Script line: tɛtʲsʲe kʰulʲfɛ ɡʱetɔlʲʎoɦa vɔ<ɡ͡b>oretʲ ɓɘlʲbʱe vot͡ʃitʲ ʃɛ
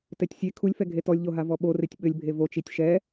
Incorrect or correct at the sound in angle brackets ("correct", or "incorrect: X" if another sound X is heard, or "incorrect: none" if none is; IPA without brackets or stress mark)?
incorrect: ɓ